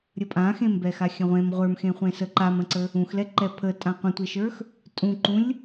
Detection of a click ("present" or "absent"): present